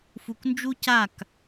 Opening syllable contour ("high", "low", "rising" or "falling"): low